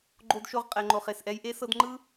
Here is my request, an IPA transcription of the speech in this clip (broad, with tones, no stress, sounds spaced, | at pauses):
ɡ͡ǃ o˥ d ʃ o˥ ʁ qʼ ɛ˨ ŋ͡ǃ o˨ χ e˨ s ʔ ɛ˦ j ʔ e˥ s ɤ˦ d ŋ͡ǃ ɯ˥